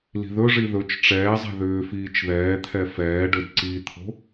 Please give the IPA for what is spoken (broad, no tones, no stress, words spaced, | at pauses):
li̤ðɵʐi ðɵt͡ʃ ʈ͡ʂɛːzˤɛ̤ ðʏːfiːt͡ʃ ðɛː t̪ʰɛfɛːɖɵd ǀit̪ʰo̤